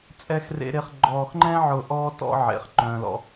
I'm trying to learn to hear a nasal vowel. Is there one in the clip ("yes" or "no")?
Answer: yes